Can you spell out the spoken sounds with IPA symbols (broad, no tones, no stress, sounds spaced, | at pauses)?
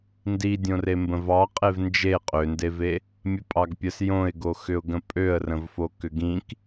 n d i dʲ õ r e m b ə̃ v ɑ qʼ e v n d͡ʒ e qʼ ø n d e v e | mʲ ə pʼ ɑ ɡ pʲ ə s j õ ɪ̯ ɡ o x ʏ ʊ̯ ɡ ə̃ pʼ ø ə̯ r ə̃ v f o k ʏ ɡ ĩ k